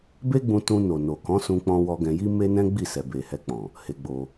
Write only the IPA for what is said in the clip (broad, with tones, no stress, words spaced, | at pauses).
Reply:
be˦ɡ͡bũ˧ tũ˧ no˨no˨ kɔ̃˨˦sũ˧k͡pɔ̃˧wɔ˧ ɡɛ̃˧ji˦ me˦nɛ̃˦ ɡ͡bi˦˨ sɛ˨be˨hɛ˧k͡pɔ̃˨ | he˧ɡ͡bo˧